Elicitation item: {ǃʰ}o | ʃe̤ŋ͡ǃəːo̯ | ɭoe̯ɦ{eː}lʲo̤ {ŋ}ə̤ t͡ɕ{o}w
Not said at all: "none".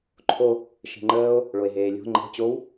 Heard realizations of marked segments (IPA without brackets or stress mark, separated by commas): ǃʰ, eː, ŋ͡ǃ, o